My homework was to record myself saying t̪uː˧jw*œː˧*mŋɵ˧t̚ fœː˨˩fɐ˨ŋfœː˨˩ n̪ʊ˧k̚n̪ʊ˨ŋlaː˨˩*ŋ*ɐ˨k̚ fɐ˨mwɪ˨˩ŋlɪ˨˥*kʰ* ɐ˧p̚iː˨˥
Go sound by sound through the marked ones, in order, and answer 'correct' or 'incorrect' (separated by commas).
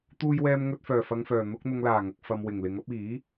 incorrect, correct, incorrect